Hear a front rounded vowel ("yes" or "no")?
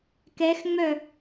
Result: yes